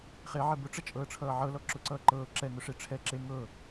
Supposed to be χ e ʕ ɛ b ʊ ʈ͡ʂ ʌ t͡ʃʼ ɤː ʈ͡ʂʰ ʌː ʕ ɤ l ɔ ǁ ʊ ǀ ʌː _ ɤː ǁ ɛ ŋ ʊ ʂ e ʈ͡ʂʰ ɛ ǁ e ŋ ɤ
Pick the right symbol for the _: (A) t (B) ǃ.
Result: B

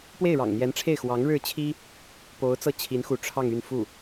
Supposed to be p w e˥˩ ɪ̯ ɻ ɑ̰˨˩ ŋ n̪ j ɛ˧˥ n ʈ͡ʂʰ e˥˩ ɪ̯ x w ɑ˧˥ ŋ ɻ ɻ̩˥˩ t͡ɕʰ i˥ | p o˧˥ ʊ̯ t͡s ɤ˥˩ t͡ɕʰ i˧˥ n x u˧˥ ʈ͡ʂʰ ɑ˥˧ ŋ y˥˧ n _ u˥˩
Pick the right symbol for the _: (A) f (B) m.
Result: A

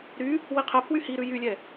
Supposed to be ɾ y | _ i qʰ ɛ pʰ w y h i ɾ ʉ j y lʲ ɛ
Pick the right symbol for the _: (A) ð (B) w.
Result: B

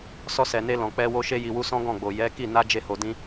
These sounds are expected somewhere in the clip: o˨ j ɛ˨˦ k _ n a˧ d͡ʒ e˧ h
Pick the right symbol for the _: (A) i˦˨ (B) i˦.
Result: A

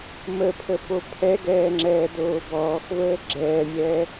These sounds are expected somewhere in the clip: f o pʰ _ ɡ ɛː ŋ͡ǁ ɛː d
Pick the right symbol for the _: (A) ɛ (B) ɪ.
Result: A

